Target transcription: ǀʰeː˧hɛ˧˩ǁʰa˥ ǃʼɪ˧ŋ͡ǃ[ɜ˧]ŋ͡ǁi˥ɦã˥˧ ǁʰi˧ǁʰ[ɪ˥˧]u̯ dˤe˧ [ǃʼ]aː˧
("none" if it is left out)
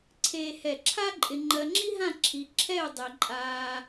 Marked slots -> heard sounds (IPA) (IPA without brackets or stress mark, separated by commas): ɜ˧, ɛ˥˧, ǃʼ